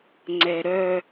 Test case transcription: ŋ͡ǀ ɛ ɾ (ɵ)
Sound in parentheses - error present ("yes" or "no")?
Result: yes